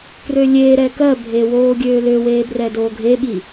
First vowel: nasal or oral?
oral